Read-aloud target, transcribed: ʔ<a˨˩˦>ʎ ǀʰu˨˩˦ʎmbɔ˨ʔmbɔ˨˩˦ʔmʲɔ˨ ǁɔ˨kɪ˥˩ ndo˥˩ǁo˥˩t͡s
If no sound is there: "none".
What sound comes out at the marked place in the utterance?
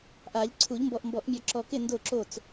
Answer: a˨˩˦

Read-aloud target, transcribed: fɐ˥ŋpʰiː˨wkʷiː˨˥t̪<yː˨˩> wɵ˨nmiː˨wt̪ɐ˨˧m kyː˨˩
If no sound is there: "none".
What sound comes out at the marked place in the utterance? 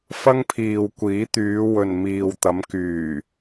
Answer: yː˨˧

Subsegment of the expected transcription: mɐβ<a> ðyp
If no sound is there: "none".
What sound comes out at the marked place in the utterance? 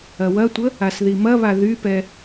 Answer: a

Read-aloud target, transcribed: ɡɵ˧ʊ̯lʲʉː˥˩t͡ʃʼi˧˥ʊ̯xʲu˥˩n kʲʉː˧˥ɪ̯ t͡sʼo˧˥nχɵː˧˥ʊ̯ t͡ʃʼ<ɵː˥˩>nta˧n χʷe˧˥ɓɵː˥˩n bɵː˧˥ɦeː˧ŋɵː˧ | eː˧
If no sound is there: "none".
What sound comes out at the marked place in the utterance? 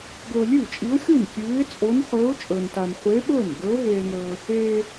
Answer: ɵː˧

